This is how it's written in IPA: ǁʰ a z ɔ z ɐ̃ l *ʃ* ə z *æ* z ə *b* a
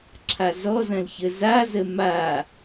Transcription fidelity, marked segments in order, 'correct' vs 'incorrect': incorrect: ç, incorrect: a, incorrect: m

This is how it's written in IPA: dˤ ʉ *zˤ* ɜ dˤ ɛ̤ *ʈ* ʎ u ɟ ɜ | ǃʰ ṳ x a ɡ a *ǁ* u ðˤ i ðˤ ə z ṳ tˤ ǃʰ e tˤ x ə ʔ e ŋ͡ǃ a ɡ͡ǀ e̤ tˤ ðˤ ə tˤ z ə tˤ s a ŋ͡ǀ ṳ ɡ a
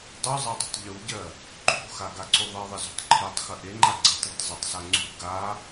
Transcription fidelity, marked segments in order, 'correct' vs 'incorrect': correct, incorrect: tˤ, incorrect: ǀ

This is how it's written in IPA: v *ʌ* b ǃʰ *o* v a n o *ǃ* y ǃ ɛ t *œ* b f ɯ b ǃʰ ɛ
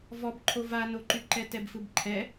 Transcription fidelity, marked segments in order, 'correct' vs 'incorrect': incorrect: ɔ, correct, correct, incorrect: ɛ

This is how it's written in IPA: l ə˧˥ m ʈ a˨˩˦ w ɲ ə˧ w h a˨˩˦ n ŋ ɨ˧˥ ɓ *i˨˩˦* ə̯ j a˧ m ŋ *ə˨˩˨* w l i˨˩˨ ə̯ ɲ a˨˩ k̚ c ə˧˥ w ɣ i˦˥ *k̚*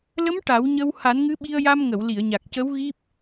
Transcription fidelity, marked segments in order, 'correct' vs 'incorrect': incorrect: i˧, correct, incorrect: p̚

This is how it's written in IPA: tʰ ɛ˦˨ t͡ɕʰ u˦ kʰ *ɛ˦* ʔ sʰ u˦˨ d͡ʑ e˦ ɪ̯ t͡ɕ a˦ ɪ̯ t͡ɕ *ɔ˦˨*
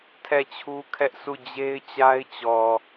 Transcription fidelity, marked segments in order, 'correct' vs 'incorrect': correct, incorrect: ɔ˨

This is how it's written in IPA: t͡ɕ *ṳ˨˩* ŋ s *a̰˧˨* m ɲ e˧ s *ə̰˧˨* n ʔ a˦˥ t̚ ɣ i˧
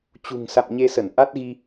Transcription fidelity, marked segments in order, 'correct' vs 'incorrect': correct, correct, incorrect: ə˧˩

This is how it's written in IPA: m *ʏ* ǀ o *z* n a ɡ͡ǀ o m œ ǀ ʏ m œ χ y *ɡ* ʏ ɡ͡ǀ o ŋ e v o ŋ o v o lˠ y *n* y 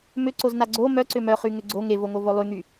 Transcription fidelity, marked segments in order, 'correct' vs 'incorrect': correct, correct, incorrect: ŋ, incorrect: ŋ

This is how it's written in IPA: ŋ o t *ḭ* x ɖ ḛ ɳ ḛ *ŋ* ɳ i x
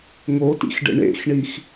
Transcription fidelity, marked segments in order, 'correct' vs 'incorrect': correct, incorrect: x

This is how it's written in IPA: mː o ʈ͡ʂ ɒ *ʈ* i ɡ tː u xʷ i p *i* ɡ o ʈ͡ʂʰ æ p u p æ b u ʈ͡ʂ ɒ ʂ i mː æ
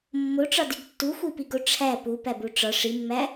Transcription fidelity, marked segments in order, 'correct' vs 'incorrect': incorrect: d, correct

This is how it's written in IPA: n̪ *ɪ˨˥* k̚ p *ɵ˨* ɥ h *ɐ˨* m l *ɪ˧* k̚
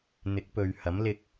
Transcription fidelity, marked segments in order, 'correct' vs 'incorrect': correct, correct, incorrect: ɐ˨˥, correct

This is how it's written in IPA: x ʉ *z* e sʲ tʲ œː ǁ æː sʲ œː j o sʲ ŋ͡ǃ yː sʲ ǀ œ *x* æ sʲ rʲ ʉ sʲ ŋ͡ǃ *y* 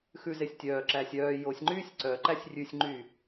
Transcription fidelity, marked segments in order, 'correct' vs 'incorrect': correct, incorrect: ǃ, correct

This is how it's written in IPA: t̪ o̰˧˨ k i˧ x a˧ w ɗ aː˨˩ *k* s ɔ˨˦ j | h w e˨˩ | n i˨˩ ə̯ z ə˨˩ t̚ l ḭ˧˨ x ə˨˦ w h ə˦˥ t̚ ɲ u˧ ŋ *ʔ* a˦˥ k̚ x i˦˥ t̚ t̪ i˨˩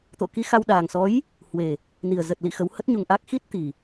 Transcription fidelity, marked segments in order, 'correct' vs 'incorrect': incorrect: ŋ, correct

